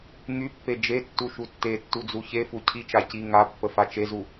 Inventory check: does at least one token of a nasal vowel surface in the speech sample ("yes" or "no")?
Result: no